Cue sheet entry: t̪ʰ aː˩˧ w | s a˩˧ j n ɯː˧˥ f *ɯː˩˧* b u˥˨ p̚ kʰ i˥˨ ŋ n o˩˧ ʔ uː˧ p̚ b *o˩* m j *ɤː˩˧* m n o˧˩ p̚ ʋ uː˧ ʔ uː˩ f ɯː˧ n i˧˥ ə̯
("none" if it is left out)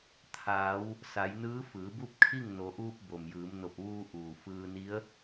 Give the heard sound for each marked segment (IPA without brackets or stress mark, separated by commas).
ɯː˩˧, o˩, ɯː˩˧